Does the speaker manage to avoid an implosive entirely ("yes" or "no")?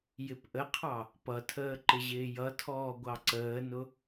yes